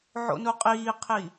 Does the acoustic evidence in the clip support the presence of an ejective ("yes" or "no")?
yes